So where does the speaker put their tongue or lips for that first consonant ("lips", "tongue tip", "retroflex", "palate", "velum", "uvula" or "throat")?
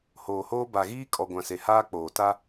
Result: throat